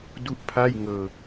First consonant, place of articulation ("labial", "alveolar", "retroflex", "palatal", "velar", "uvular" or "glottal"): alveolar